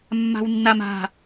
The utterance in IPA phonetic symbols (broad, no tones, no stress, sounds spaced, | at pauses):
mː a̤ w nː a m a̤